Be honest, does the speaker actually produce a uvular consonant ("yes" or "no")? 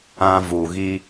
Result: no